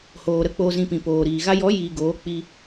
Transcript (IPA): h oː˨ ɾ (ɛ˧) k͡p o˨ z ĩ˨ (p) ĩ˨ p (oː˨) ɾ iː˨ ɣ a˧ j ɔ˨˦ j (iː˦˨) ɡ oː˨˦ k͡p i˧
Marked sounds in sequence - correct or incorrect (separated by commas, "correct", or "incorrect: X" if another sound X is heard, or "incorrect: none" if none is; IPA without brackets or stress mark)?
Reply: incorrect: ə˧, correct, correct, incorrect: iː˨